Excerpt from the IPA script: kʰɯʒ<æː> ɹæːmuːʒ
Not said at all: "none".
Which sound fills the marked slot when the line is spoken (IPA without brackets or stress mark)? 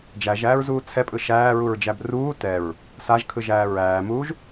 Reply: æː